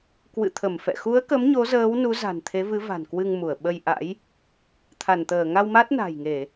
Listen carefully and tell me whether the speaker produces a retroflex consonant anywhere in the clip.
no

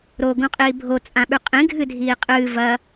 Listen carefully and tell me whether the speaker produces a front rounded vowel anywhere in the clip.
no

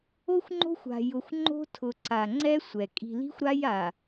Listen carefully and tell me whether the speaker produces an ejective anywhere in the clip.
yes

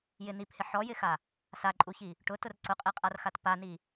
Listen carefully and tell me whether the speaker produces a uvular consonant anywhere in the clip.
yes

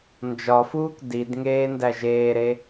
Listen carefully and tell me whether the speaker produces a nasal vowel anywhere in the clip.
no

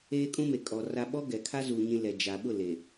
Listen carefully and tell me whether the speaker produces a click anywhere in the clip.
no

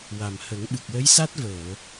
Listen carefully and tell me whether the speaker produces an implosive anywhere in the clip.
yes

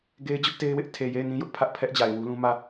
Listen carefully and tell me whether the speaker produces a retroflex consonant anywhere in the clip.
no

